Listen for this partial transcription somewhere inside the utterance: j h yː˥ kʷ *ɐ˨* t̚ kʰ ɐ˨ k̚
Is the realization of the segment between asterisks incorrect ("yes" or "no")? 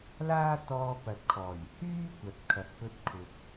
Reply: no